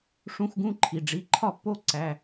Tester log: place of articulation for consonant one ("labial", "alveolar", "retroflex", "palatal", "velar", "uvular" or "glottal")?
retroflex